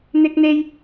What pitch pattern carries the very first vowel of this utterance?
high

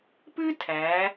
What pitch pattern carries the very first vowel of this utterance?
high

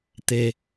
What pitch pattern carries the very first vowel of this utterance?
low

